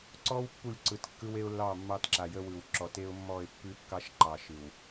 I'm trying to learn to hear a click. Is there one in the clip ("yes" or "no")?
yes